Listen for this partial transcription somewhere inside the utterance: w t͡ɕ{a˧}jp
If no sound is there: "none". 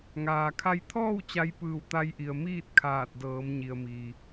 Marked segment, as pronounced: a˧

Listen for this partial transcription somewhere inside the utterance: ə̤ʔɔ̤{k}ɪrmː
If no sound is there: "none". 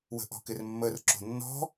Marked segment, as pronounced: k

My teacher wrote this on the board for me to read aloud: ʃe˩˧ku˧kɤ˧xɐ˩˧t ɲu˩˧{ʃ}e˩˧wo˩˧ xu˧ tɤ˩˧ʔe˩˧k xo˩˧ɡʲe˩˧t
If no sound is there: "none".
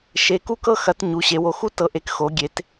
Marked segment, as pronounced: ɕ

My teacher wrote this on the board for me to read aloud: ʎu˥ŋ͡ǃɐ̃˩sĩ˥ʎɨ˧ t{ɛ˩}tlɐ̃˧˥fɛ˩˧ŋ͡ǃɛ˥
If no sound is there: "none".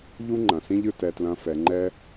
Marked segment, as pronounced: ɛ˧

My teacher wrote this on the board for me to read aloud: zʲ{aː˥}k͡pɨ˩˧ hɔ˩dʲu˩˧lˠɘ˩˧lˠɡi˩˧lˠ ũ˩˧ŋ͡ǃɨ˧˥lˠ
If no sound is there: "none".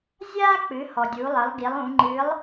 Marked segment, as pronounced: aː˥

